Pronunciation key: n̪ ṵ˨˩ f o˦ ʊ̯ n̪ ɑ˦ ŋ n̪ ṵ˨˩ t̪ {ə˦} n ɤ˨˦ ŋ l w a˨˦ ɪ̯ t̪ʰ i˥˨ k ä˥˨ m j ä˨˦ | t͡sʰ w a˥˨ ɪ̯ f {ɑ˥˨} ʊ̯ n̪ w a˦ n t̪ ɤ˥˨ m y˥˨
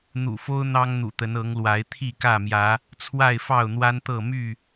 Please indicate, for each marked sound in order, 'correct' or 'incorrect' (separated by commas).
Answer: incorrect, correct